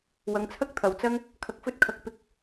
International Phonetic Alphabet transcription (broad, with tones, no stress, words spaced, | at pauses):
wɐ˨ŋt͡sʰɐ˥k̚ t̪ʰɐ˨wt͡sɐ˥ŋ | kʰɐ˧k̚fɵ˥t̚kʰɐ˧k̚ pɪ˧k̚